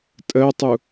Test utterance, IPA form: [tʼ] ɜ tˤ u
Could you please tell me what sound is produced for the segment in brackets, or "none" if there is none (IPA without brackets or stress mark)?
tʼ